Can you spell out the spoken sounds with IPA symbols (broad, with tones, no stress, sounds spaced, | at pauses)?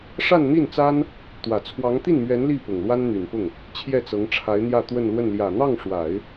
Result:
ʂ a˥˧ n n̪ i˥˩ n t͡s a˥ n | t̪ w ä˨˩ t͡sʰ w ɑ˧˥ ŋ t̪ i˥˩ n m ɥ ɛ˧˥ n l i˥˩ p ʊ˨˩ ŋ l w a˥ n n̪ y˨˩ n p ʊ˥˩ ŋ | t͡ɕʰ j ɛ˥˩ t͡s ɤ˧˥ ŋ ʈ͡ʂʰ a˧˥ ɪ̯ n̪ j ä˥˧ t̪ w ə˥˧ n l w ə˥˩ n l j ä˨˩ n̪ ɑ˥˩ ŋ ʂ w a˨˩˦ ɪ̯